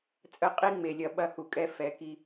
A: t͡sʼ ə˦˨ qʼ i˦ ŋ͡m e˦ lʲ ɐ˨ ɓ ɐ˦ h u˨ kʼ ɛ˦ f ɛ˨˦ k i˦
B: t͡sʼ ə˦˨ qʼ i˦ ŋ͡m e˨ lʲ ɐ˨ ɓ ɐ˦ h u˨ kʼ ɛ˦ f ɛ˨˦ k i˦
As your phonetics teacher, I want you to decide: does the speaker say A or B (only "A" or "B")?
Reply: B